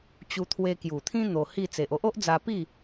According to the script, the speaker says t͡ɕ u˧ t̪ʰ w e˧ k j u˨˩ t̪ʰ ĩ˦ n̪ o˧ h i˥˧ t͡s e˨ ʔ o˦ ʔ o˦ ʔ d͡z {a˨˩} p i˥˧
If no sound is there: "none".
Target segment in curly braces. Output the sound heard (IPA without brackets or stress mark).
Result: a˧